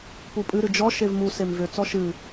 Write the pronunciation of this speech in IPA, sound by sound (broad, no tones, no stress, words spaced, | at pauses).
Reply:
pupʼɨ ɾɨd͡ʒɔ ʃevmu semvʏ t͡sɔʃɨ